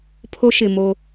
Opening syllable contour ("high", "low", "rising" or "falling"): high